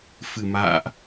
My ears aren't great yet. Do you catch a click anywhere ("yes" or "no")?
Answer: no